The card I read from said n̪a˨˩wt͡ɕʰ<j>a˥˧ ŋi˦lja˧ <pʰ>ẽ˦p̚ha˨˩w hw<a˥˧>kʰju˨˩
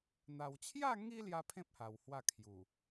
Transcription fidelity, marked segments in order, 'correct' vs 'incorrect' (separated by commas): correct, correct, correct